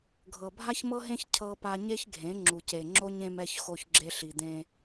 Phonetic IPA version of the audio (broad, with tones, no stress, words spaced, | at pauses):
ɡʱɤ˨bʱa˦çmɤ˦ɦẽ˦ç cʰɤ˦pa˦ ɲe˦çɡʱẽ˨˦ ŋ͡ǁu˨ce˨ŋ͡ǁo˦ɲ ẽ˦mɛ˦ç xo˦çɡ͡ǁe˦ ɬi˨d̪ẽ˦